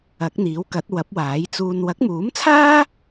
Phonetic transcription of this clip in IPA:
ɐ˨˥k̚n̪iː˨˥wkɐ˨˥t̚ wɐ˨˥p̚waː˨˥jt͡suː˧n wɐ˨˥k̚muː˨˥mt͡sʰaː˥

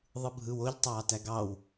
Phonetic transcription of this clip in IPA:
ðˤɯbʱɯw oʎtˤɑː tæɡɑw

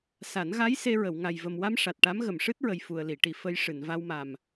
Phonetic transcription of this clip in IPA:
sa˨˩˦nɣa˧˥j se˧ɹə˨˩˨w ŋa˨˩jvə˨˩mwa˧m ʂa˨˩t̚ʈa˧˥m ɣə˨˩˨mʂɨ˦˥t̚ɹə˨˩j fu˨˩ə̯li˨˩˨ ʈi˨˩˨ fə˧j ʂɨ˨˩˨nva˧wma˨˩m

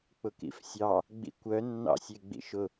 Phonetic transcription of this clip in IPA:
k͡pʊkḭfsʲɑ | ɡ͡bḭkʷœnːɑ̰ sʲeɡ͡bḭʃʊ

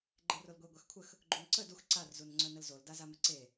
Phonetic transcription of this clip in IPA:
ɡ͡ǃerolɡʷe ɡʷaxkʷʰəx | ɡ͡ǃunǀə dux ǀar zunŋ͡ǀœnəlzol dazaməǀe

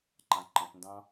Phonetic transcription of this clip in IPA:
ǃãǃə̃pndɑ̃

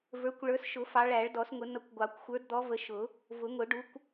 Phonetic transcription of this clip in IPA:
və˞˨˦kʷ ɭə˞˨˦sʃʊ˨˩˦ fɑ˨˦ɭæ˨˩˦ɭdɔ˨˩˦sŋʊ˨˩˦ nʌ˨˦kʷɡʷɑ˨˩˦kʷ xʷə˞˨˦dd̪ɔ˨˦və˨˦ ʃʊ˨˩˦ | vʊ˨˩˦ŋʊ˨˩˦ ɖu˨˦kʷ

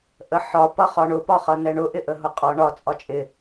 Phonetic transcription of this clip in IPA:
ʔəħɒ pʌχɒɳʊ pɒχʌnɛɳʊ ʔɪʔəɦʊqʼɒ ɳɒ t͡sʼɒt͡ʃʼɪ

